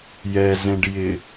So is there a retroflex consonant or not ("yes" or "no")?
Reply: yes